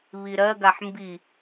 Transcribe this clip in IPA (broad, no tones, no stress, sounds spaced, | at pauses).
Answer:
β i ɾ ɜ ɡ a ħ m b i